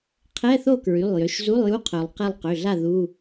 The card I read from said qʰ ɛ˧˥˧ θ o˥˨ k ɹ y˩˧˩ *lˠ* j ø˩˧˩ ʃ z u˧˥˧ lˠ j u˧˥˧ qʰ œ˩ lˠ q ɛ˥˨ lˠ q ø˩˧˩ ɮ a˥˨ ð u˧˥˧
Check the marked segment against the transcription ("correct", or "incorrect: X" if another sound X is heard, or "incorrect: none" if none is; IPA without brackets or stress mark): correct